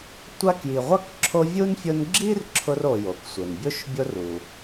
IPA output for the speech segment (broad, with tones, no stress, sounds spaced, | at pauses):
tʷ a˥ k j i˨ ʁʷ a˥ k ǁʰ o˦ vʲ u˥ n fʲ ʊ˦ n ɡ͡ǁ i˥ r ǁʰ ʊ˦ r o˨ j o˩ k sʷ ɪ˩ n bʲ o˥ ʃ bʲ o˦ r u˩